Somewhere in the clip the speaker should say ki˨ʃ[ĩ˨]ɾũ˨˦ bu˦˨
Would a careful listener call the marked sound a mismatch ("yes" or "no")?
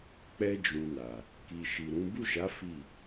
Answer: yes